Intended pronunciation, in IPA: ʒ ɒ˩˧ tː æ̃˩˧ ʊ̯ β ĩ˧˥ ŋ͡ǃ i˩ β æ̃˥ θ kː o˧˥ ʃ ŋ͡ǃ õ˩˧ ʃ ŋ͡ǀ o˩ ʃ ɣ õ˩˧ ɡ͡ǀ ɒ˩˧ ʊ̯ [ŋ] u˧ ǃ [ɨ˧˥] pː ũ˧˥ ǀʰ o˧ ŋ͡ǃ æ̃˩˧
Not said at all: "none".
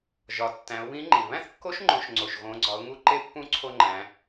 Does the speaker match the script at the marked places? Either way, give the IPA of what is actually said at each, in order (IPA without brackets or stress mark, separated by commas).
ŋ, e˧˥